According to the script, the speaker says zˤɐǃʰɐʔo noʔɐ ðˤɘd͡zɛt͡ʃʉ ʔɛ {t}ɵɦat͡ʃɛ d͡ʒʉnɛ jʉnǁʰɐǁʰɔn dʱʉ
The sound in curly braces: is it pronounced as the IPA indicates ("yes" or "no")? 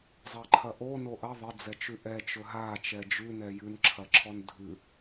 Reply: no